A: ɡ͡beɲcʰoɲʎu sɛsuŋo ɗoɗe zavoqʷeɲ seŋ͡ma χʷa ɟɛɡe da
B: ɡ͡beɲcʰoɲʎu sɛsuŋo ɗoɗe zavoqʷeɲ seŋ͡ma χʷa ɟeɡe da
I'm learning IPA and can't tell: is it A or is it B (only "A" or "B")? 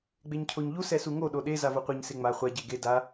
B